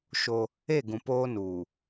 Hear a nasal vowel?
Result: yes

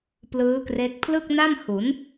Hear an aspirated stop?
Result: yes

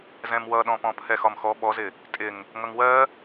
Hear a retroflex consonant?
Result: no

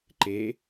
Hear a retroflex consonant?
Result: no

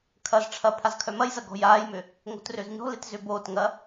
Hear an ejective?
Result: no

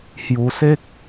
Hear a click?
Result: no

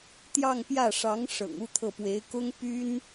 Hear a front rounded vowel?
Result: yes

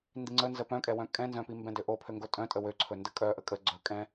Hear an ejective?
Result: yes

